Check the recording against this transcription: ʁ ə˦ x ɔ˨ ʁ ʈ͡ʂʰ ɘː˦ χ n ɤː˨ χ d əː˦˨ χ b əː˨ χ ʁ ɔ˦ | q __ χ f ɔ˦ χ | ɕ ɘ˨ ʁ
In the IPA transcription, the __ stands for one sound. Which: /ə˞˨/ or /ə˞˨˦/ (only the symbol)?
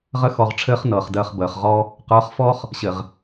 ə˞˨˦